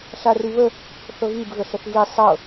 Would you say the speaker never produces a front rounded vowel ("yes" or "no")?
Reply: yes